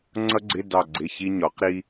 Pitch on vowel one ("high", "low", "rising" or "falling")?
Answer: high